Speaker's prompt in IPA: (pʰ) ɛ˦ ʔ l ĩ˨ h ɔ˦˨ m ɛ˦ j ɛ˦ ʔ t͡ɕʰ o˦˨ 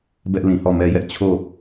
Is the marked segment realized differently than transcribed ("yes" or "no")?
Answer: yes